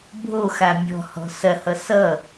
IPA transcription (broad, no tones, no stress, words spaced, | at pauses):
bʱoxa mʲɔ̤hɔ̤ sɐhʌ sʌ